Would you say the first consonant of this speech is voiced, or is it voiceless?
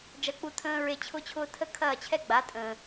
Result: voiced